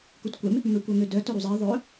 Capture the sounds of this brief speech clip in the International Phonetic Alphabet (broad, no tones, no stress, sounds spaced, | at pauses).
k u t kʷ ɛ m | m ø kʷ œ ŋ ø d œ t œ ɾ u zˤ e ðˤ œ